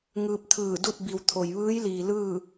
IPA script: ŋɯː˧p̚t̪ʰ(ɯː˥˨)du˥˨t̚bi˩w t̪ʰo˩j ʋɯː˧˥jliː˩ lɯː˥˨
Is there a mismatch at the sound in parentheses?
yes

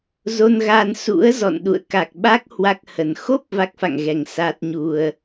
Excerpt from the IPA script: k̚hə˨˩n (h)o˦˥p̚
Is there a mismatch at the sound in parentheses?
yes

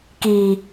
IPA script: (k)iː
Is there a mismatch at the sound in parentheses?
no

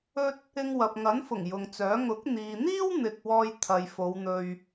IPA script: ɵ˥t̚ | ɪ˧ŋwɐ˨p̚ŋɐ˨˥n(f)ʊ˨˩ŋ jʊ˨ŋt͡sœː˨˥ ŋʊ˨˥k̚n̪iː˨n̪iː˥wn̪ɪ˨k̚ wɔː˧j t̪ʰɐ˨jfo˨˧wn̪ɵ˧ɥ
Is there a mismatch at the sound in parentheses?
no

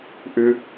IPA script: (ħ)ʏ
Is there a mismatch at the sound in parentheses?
yes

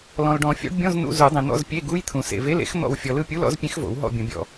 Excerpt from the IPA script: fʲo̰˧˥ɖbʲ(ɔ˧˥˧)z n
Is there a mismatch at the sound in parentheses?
yes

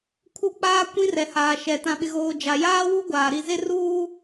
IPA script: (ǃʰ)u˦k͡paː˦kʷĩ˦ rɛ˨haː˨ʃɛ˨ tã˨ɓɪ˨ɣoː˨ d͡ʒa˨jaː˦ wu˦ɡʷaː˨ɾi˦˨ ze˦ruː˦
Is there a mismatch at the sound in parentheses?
yes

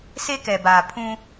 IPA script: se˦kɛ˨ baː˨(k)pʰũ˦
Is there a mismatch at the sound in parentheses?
yes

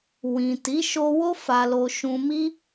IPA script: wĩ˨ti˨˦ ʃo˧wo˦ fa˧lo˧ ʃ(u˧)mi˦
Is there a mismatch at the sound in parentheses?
yes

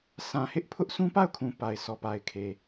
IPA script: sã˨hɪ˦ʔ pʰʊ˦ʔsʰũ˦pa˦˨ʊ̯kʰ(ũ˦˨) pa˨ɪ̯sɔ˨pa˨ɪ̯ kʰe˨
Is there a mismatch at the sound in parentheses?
yes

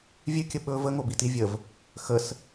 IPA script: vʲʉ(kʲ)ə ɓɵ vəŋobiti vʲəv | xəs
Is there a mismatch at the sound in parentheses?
no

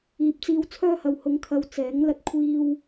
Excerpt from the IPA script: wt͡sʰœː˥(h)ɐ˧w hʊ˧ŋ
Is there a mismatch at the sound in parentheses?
no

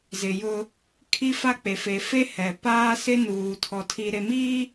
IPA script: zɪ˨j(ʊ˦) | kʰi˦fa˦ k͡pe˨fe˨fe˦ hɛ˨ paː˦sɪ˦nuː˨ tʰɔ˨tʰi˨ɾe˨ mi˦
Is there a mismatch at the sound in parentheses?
no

